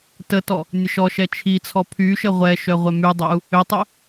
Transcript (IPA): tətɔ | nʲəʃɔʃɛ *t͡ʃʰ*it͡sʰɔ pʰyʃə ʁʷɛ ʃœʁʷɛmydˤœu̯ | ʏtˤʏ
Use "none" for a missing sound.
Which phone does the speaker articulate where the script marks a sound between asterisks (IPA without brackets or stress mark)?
t͡ʃʰ